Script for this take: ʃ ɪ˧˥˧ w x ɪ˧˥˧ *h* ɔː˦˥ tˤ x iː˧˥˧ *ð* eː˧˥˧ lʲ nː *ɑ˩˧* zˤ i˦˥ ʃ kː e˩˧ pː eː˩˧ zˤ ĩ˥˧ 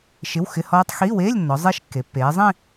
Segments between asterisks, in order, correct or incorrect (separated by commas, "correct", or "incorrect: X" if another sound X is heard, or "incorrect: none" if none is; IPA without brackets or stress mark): correct, incorrect: w, incorrect: ɔ˩˧